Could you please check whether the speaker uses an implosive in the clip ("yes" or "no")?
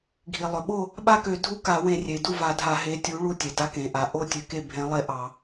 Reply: yes